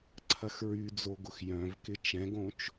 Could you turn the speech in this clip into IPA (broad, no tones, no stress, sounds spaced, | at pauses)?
ǀʰ ɐ x ɹ y d͡z o ɡ ʊ x j œ̃ v k ɪ t͡ʃ ɛ̃ ɡ õ t͡ʃ